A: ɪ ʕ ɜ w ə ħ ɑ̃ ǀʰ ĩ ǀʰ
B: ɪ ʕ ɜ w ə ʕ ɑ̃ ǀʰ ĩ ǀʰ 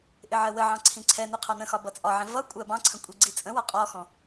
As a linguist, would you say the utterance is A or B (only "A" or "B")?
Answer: B